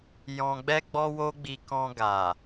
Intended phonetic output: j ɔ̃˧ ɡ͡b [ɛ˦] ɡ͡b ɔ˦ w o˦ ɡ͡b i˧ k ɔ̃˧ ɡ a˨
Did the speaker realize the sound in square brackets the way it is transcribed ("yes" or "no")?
yes